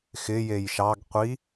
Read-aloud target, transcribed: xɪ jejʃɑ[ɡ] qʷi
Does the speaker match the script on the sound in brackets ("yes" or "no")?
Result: yes